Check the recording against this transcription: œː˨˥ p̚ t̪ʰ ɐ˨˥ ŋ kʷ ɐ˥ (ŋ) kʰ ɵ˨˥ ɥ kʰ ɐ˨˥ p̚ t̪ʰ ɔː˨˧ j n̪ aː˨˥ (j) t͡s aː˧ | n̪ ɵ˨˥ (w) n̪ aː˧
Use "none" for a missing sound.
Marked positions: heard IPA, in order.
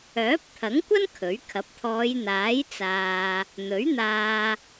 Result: n, j, ɥ

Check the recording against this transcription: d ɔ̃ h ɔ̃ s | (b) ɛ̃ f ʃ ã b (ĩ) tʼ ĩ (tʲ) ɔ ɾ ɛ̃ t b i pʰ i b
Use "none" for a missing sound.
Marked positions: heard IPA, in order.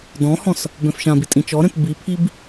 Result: b, i, t͡ʃ

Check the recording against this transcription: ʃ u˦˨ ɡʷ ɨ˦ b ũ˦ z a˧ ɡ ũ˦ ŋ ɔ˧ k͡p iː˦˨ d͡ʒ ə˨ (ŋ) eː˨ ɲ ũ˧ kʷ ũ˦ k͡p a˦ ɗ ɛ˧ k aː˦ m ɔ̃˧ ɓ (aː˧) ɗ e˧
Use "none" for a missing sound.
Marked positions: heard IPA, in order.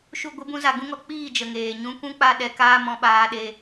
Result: ŋ, aː˧

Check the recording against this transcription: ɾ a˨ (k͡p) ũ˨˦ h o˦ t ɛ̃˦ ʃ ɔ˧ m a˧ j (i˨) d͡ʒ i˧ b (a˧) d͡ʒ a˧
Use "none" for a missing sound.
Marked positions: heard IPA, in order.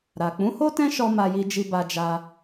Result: k͡p, i˧, a˧

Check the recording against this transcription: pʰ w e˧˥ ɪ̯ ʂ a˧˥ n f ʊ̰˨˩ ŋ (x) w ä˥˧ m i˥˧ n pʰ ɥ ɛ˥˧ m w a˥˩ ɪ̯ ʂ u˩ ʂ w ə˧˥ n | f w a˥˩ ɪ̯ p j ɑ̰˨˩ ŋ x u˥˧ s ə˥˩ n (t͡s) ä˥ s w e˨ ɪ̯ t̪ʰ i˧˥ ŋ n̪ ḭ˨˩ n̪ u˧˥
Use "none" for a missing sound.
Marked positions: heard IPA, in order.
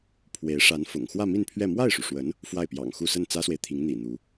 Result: x, t͡s

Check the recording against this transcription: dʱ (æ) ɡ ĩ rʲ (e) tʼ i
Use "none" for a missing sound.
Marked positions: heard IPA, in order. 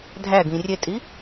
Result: æ, e

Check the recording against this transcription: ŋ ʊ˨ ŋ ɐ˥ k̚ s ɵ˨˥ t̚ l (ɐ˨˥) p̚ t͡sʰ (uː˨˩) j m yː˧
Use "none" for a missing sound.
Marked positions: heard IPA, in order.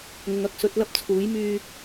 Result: ɐ˥, uː˨˥

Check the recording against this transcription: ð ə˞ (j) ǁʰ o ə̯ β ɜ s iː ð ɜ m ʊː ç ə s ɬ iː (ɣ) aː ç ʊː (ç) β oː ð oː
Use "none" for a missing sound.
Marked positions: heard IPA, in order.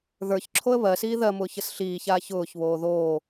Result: ç, ç, ç

